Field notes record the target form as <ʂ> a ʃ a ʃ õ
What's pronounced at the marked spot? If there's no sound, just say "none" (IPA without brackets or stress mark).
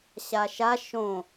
ɕ